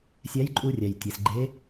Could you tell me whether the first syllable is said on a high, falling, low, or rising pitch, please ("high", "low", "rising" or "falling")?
rising